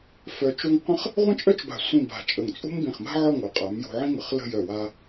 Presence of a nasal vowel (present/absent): present